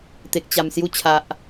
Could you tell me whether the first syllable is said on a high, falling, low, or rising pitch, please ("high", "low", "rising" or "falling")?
low